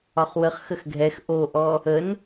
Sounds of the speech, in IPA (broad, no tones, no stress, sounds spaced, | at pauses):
ɒ χ w ə χ x ə x ɡʱ ɛ x ʔ o ʔ ɔ | ə n